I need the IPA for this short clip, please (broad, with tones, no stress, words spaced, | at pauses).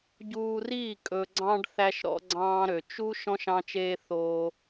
ɟuː˧riː˦˨ kʼɵ˨ɡ͡ǀɑ̃˧ɖ θæ˧ʃɾɔ̰˧ɡ͡ǀɑ̃ː˧ɾø˨ t͡ʃu˦ ʃɔ̃˦ʃ ɑ̃˧t͡ʃeː˧ θoː˧